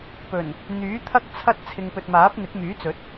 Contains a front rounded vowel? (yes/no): yes